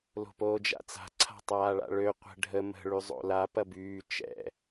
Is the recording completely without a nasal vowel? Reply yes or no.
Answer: yes